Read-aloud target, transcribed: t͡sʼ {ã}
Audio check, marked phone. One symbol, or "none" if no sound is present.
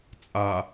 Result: a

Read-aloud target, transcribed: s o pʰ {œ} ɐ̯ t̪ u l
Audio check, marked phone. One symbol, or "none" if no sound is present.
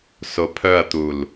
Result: œ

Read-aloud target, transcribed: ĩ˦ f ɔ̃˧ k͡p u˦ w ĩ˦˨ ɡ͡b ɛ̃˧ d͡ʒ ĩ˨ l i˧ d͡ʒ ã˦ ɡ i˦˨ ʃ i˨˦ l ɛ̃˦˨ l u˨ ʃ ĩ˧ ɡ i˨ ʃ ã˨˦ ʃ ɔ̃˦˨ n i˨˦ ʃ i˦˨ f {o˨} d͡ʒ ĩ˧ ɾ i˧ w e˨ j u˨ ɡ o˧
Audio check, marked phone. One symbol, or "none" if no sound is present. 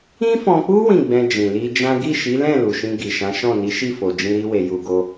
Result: o˨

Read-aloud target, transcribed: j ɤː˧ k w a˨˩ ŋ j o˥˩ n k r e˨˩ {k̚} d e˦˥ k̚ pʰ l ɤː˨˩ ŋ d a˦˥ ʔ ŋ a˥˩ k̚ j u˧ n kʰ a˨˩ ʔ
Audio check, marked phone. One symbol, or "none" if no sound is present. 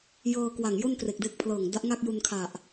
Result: k̚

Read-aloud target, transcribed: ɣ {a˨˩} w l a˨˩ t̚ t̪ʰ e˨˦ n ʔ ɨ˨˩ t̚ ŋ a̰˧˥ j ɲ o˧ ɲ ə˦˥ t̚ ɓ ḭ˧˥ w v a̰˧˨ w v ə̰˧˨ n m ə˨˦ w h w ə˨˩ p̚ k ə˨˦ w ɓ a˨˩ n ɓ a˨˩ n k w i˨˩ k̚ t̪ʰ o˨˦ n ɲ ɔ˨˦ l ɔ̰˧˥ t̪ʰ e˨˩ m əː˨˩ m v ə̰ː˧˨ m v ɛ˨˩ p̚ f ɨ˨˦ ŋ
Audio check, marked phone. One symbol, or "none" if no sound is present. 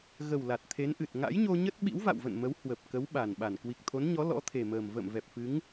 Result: ə˨˩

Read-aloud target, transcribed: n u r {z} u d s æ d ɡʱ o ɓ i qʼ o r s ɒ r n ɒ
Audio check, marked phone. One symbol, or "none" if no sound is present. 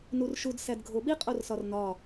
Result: ʃ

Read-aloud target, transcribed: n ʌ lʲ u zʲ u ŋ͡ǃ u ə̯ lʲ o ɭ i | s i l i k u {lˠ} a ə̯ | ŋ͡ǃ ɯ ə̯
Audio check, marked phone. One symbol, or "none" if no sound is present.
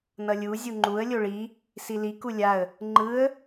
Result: lʲ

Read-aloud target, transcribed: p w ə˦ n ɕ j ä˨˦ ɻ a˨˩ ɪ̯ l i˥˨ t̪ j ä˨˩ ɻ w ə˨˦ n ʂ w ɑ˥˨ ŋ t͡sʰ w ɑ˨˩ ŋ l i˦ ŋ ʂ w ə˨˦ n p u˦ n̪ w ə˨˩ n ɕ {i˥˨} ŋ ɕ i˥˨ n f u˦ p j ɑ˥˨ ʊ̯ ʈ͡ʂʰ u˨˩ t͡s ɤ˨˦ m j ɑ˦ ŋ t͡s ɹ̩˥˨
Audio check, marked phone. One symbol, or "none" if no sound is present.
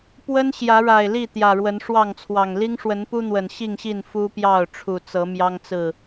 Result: i˥˨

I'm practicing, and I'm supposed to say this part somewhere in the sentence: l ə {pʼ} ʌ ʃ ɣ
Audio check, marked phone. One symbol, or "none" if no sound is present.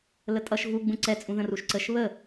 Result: tʼ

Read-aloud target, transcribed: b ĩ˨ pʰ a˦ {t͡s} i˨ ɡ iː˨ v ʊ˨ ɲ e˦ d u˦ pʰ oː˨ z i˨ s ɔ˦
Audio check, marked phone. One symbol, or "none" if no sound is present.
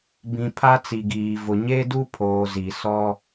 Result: t͡s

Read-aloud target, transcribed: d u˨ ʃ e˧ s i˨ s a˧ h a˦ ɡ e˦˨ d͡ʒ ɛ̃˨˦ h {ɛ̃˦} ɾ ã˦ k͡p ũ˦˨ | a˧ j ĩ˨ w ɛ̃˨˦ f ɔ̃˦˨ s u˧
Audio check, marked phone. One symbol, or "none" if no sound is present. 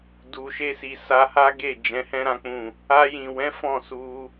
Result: ɛ̃˦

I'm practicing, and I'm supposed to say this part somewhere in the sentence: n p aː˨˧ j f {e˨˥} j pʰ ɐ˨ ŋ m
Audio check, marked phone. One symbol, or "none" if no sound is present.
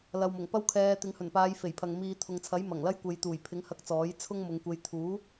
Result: e˨˩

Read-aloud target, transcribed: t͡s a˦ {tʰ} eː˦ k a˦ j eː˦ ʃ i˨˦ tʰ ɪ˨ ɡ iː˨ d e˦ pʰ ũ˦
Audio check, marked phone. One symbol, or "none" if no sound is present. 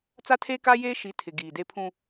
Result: tʰ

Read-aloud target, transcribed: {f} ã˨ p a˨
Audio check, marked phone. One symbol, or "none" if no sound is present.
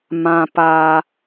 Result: m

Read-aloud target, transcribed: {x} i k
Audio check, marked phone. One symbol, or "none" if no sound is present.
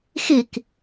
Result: x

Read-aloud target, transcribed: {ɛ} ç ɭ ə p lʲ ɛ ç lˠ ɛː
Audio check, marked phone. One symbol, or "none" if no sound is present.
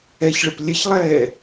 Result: ɛ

